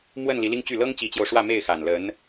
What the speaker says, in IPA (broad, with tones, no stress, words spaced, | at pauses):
mwə˥˩n li˧˥li˥ŋt͡ɕy˥˩ lɤ˥ŋt͡ɕi˧˥t͡ɕjo˧ʊ̯ ʂwä˥˧me˥˩ɪ̯xa˨˩n lə˧˥n